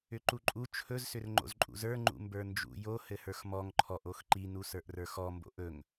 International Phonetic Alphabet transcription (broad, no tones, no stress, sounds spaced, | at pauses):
ʏ ǃ u ǃʼ u t͡ʃʰ ɵ z s ʏ r ŋ͡ǃ o̰ z ǃʼ ṵ z ə˞ ŋ͡ǃ ṵ m b ə˞ n d͡ʒ ṵ j o h ɘ h ə˞ x m ɔ ŋ ǃʰ ɔ ʔ o x ǃ i n u s ə˞ ʔ r ə˞ x ɔ m b o̰ ʔ ɵ ŋ